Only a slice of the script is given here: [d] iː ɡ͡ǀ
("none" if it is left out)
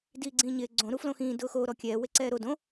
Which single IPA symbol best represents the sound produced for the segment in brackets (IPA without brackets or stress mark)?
d